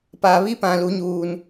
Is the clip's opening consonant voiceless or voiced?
voiceless